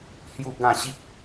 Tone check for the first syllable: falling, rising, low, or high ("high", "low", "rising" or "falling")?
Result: falling